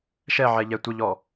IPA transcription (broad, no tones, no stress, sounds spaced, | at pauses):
ʃ ɛ ʕ ɛ ʎ ɛ tʷ ə ʎ ɔ